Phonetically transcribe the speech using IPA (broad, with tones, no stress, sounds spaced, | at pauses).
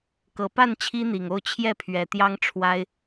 k ɤ˨˩ p a˥˨ n t͡ɕʰ i˦ n̪ i˨˩ ŋ o˥˨ ʊ̯ t͡ɕʰ j ɛ˥˨ pʰ ɥ ɛ˨˩ t̪ j ɑ˦ ŋ ʈ͡ʂʰ w a˦ ɪ̯